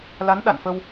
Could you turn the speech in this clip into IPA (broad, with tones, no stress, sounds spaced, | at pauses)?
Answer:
l a˨˦ n ɗ a̰˧˨ n f ə˧ w